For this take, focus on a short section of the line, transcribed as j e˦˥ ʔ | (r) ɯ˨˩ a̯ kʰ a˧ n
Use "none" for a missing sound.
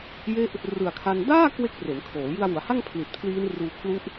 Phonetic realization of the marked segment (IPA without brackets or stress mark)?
r